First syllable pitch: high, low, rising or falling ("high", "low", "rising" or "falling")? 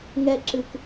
high